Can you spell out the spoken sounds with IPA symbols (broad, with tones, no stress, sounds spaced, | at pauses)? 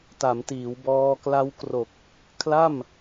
t a˩˦ m t iː˩˦ w b ɔː˧ k l a˦˥ w k r o˨˩ k̚ | kʰ l a˥˩ m